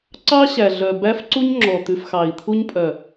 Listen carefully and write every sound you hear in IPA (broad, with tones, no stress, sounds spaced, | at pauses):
ǀ ɑ˦ ɕ æ˨ ɮ œ˨ b æ˦ f ǀ u˦ ɲ ŋ͡ǁ ɔ˨ t̪ ʉ˨ f x ɑ˨ i̯ t̪ʰ u˦ ɲ pʼ œ˨